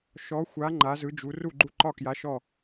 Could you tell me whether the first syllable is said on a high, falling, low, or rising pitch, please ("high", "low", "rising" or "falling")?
rising